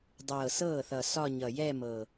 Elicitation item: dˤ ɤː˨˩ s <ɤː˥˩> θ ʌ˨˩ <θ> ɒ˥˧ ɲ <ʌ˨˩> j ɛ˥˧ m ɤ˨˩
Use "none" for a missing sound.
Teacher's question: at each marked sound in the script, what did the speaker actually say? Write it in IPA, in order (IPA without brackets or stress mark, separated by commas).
ɤː˥˩, s, ʌ˨˩